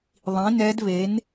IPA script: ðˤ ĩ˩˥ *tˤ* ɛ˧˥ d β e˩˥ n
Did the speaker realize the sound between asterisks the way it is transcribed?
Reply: no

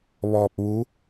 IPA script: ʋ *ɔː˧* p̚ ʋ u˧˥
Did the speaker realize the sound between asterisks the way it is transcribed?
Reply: yes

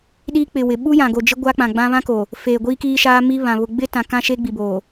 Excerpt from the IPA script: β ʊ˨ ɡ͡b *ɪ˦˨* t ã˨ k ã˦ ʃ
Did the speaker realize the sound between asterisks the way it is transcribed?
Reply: no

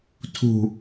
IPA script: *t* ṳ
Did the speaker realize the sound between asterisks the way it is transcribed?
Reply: no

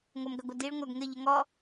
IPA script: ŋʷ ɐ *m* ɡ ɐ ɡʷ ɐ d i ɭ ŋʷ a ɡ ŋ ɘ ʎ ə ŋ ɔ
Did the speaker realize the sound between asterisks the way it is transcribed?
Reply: yes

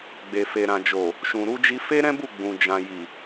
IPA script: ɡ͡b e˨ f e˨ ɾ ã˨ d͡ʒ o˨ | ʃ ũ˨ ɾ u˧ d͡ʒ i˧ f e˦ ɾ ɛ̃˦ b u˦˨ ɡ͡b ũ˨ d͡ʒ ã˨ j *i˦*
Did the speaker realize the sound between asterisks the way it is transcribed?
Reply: no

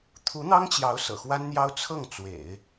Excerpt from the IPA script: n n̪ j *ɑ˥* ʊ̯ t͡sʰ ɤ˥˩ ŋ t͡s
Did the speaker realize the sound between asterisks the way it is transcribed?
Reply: yes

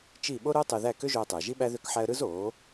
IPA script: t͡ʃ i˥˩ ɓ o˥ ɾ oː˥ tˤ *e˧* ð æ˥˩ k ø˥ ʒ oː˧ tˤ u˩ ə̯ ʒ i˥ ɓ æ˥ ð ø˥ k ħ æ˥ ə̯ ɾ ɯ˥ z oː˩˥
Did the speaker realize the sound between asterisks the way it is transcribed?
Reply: yes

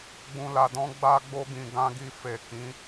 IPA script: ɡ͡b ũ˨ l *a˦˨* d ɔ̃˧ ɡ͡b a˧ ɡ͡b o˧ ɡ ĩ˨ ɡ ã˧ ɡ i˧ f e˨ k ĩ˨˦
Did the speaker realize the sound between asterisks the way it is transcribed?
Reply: no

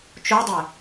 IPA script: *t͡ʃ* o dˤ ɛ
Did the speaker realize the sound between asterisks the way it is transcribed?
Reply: yes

